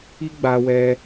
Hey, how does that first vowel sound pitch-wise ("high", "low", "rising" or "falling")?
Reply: high